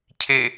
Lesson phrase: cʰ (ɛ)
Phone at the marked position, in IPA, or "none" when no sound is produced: e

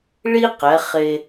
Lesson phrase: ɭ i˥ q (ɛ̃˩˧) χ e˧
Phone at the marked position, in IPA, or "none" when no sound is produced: ɛ˩˧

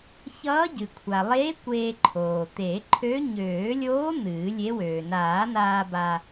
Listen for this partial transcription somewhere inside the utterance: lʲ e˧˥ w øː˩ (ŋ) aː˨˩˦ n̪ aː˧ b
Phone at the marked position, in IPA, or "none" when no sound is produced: n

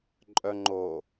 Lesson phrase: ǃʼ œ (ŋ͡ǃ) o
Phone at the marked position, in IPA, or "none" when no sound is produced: ŋ͡ǃ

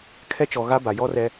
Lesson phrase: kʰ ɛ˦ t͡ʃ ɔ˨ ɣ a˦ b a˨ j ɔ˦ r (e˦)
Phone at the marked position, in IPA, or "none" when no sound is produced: ɛ˦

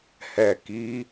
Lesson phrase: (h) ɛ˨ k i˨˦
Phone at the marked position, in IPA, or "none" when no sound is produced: h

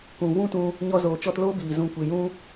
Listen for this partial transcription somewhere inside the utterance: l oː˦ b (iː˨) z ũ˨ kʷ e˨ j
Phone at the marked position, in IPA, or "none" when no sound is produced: iː˨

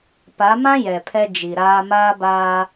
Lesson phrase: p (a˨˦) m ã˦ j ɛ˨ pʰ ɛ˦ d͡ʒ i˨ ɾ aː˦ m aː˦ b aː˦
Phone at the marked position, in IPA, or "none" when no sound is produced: a˨˦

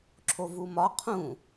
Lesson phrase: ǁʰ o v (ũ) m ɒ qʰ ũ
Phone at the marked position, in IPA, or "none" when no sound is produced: u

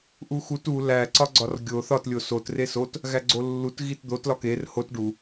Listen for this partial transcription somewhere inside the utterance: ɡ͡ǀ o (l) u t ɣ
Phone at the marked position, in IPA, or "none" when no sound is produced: lː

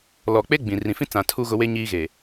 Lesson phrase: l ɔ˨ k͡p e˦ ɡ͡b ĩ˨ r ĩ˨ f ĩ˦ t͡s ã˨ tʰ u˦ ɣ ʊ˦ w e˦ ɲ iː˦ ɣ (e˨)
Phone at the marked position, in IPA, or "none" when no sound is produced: e˨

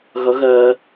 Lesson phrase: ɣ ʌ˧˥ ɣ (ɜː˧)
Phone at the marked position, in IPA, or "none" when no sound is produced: ɜː˧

